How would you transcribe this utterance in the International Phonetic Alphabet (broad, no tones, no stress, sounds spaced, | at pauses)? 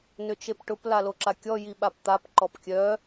n ʏ t͡ʃ e p ʈ ʊ p l a l o ǁ a kʲ ɔ j i ɓ a p t̪ a p ǃ ɔ p kʲ œ